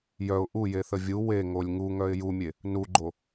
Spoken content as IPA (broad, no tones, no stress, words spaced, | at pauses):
jœʊ̯ ʔujeθə vʲu weŋolʲ ŋuŋœɪ̯ jumʲe | nuɡ͡ǃo